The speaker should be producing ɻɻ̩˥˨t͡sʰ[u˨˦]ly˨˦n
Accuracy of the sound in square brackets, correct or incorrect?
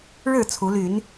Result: correct